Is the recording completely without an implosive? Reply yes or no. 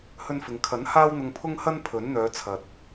yes